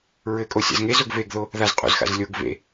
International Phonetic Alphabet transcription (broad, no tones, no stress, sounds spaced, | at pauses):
ɹ ɘ kʼ o sʲ a̰ z ŋ e z o ɡ v e ɡ ð o | ð a z qʼ o̰ z x a̰ z lʲ o ɡ v ḛ